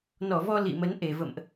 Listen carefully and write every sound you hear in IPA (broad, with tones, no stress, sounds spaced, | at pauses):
n ɔ˧˩ v ɔ˧ l ḭ˧˨ m ə˨˦ n ʔ e˧˩ v ə̰˧˨ m ʔ